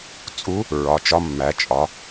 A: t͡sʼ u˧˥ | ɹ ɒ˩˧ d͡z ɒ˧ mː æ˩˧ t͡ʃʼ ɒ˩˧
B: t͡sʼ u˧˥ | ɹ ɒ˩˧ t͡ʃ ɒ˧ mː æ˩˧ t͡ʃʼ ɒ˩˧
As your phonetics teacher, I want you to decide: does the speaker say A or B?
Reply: B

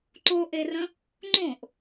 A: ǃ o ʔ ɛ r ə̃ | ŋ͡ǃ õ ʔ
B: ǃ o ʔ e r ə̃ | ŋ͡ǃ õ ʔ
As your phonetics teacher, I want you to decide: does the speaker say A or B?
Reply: B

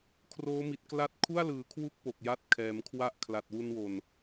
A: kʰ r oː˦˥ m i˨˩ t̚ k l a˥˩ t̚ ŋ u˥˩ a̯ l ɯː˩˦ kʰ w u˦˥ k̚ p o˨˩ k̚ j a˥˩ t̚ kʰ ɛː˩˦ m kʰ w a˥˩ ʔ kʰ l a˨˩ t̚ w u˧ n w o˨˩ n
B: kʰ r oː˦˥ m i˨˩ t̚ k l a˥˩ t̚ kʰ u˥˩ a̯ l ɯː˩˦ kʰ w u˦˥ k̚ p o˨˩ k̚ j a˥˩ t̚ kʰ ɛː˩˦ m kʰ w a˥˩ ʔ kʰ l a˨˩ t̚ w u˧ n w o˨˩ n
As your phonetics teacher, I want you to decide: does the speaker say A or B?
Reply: B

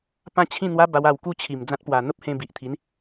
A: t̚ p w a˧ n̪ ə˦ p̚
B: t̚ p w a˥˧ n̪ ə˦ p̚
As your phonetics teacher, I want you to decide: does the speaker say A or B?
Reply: A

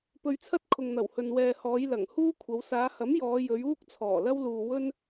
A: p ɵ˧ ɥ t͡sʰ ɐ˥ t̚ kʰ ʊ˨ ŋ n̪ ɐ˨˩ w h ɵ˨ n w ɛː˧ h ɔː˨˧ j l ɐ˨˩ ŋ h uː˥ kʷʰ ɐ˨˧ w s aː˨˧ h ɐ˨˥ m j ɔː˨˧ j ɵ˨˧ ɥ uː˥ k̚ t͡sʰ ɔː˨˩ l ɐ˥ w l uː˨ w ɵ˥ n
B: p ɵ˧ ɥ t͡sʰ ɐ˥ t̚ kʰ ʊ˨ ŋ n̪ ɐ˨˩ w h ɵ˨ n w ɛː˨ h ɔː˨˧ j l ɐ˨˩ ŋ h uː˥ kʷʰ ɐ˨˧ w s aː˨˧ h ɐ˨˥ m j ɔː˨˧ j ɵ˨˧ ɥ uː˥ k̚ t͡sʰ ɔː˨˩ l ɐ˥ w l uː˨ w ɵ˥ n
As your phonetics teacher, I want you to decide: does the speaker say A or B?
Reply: B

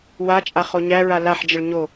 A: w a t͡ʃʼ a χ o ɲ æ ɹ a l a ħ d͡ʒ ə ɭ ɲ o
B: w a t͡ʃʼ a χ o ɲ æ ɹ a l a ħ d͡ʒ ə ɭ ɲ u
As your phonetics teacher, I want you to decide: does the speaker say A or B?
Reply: A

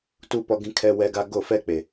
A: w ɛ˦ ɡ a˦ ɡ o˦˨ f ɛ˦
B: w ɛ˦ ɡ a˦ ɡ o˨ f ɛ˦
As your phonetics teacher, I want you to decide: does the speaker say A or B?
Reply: A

